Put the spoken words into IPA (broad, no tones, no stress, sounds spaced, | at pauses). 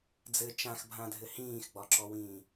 d͡z ɘ t͡ʃ ã x bʱ ã dʱ ɘ h ĩː x ɡ͡b ɒ ǁ ɔ w ĩː